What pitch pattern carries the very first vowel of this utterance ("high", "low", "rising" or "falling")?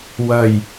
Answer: low